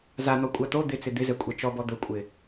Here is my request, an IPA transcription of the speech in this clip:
z a n̪ ɔ kʷʼ a t̪ o d̪ ɪ t͡s ɪ d̪ ɪ z ɛ kʷʼ ɛ t͡ʃ ɔ b ɔ d̪ ɵ kʷʼ ɪ

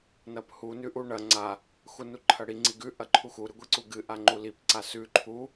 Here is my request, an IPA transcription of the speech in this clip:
n ɐ p h u n ʉ ʔ u ɳ ɐ ŋ͡ǀ a | x u n u ǃʰ ɐ ɽ i ŋ͡ǀ i ɡ ʉ ʔ ɐ ǃʰ u x u ɾ ɨ ɡʷ i ǀ u ɡ ɨ ʔ a ŋ͡ǃ u l i p ǀ a s ʉ ǃʰ u

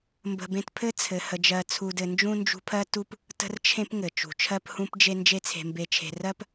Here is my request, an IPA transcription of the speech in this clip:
m b ə̤˦ b ẽ˥ t pʰ ɘ˥ t͡sʰ ɘ˨ h ə˨ d͡ʒ ɜ˨ t͡sʰ u˨ d ɘ˨ n d͡ʒ ũ˥ n d͡ʒ ṳ˦ pʰ ɜ˥ t u˦ p | t ə̤˥ r t͡ʃʰ ẽ˥ p ŋ ɘ˩ t͡ʃ ṳ˩ t͡ʃʰ ɜ˦ p h ũ˦ p d͡ʒ e˦ n d͡ʒ e˦ t͡sʰ e̤˨ m b e˨ t͡ʃʰ e̤˨ r ɜ˦ p

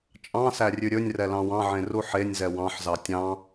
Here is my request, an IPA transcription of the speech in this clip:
t͡ʃʼ ɑ̃ s æ rʲ ʉ ɾʲ ɵ nʲ r ɛ l ɑ̃ w ɑ̃ ʕ ẽ r u ħ e nʲ z ɛ w ɑ̃ ħ z ɑ tʲ ɑ̃

